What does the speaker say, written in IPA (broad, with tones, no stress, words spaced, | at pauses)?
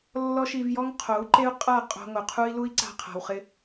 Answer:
lːɔ˦ʃi˧vjɔ˦ŋ qʰo˨˦u̯ǃe˦u̯qʼa˦˨ qʼo̤˧ŋo˨ qʰu˦i̯ lu˦i̯ǀa̤˧qʰa̤˨wχɪ˧